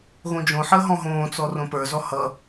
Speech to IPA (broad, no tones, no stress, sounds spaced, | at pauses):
ɣ õ d͡ʒ õ ħ əː ɦ ɔ̃ ɦ õː t͡s ɔ r õ p ə˞ z ɔ h ʌ